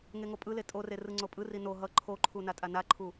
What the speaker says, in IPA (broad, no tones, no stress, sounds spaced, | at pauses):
ŋ e ŋ o pʼ ɯ l e tʼ o r e r ɯ ŋ͡ǀ o pʼ ɯ r i n o ɦ ʌ ǃʰ o ǃʰ u n a tʼ a n a ǃʰ u